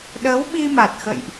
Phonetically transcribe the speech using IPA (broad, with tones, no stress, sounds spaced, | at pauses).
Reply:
ɗ ə˨˦ w ɓ i˧ m a˨˩ t̚ x ə̰˧˨ j ʔ